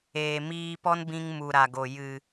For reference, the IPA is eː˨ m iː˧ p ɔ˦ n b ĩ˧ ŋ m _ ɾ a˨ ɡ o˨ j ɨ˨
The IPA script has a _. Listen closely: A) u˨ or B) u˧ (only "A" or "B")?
A